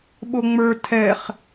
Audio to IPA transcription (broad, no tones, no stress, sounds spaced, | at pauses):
ɓ o ŋ͡m ə˞ tʰ ɛ χ